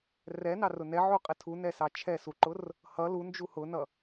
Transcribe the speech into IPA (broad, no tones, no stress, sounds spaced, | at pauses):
r ɛ n ɑ r ʊ n ɛ ʕ u qʼ ɛ tʰ u n ɛ s ɑ t͡ʃʰ ɛ s u ǃ ʊ r | h ʌ l u n d͡ʒ u h ʊ n ʌ